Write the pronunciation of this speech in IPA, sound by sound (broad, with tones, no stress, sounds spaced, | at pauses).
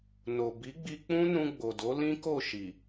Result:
n o˨ b i˨˦ ɡ͡b i˧ k͡p ũ˦ n ũ˧ ɡ͡b o˨ d o˨˦ l ĩ˦ k o˦˨ ʃ i˨